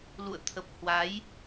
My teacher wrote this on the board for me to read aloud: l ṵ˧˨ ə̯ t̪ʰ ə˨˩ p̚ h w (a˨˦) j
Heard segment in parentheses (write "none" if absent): a˨˦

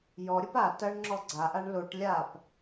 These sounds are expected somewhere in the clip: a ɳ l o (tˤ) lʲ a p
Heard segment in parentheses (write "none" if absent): ʈ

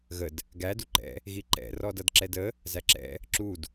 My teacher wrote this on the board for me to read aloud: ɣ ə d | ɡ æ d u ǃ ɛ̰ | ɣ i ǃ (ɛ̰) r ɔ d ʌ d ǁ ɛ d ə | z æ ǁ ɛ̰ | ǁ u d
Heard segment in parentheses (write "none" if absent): ɛ̰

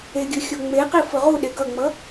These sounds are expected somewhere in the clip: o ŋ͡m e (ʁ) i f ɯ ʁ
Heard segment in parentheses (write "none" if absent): q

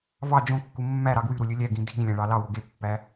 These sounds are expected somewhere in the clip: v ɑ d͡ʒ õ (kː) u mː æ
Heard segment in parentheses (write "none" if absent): kː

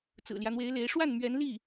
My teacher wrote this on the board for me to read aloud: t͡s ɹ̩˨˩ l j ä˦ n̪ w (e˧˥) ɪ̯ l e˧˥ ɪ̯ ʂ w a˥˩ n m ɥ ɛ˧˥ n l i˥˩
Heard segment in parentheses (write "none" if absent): e˧˥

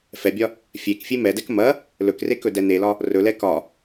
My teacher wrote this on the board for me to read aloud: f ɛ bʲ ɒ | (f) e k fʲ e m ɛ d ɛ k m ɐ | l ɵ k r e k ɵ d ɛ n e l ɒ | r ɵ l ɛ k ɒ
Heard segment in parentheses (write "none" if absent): fʲ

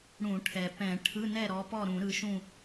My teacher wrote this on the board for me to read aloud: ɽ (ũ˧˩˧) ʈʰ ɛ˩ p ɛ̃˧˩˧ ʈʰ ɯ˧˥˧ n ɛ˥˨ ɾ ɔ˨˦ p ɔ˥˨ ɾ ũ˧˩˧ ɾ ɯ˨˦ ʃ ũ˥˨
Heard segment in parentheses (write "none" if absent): ũ˧˩˧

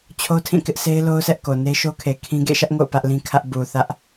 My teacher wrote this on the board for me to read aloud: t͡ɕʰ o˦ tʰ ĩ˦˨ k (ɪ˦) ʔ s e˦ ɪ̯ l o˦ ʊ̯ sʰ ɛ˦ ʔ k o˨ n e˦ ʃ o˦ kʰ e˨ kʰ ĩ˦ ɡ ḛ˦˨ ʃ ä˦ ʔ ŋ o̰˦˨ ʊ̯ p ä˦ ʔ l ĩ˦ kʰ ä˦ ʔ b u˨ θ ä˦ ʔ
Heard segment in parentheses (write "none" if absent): ɪ˦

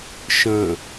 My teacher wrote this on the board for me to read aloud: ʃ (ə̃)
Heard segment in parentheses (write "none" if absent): ə̃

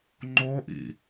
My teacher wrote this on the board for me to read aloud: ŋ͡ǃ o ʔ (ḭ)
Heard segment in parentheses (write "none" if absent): ḭ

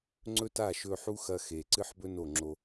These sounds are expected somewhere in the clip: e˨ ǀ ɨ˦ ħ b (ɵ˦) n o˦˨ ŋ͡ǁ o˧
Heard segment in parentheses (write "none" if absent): ɵ˦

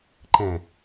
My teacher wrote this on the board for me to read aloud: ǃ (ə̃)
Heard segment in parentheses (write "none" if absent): ɛ̃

